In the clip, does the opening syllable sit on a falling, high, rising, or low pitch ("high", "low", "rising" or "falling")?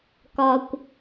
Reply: low